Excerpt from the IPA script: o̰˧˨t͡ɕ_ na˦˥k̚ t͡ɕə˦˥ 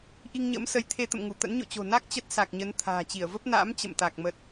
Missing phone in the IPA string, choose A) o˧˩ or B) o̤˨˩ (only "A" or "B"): B